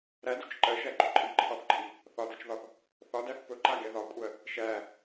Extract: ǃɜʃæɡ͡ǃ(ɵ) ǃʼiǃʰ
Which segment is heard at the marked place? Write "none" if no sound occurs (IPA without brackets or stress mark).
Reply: ɵ